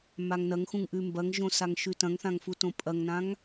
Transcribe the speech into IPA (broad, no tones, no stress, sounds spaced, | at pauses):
m a ŋ n ɐ ŋ x ũ ŋ ʔ ʉ m b ɐ ŋ ʒ õ s a ŋ ʃ ʉ t ɐ̃ ŋ θ ã ŋ f u t õ pʼ ɐ ŋ n ã ŋ